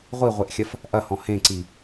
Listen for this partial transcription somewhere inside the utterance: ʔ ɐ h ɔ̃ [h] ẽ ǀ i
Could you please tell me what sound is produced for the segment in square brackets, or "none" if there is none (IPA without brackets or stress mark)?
h